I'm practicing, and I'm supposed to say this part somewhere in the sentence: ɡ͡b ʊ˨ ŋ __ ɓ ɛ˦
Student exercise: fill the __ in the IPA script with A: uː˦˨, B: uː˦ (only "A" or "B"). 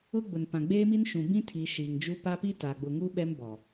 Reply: B